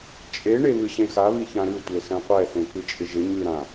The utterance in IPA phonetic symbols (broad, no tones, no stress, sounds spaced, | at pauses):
t͡ʃʼ e ɳ e β ɨ ɕ ẽ x a β i ç ã ɾ ʉ tʷ e s ɛ̃ qʷ ɛ θ ẽ k ɨ t͡ʃʼ ɪ ʒ ɪ ɲ ʉ ɾ ã